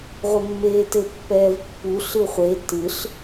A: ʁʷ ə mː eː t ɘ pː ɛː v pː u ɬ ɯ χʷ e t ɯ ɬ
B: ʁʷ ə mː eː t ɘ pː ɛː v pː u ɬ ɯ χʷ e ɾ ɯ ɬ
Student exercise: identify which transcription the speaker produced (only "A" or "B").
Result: A